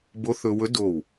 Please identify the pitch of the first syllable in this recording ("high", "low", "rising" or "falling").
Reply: rising